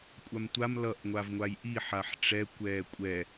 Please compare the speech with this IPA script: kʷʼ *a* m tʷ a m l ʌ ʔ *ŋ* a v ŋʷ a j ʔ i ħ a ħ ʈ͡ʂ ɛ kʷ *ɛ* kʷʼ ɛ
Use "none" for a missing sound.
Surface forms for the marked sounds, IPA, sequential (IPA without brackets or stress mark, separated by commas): a, ŋʷ, ɛː